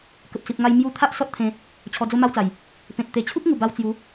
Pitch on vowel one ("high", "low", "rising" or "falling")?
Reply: low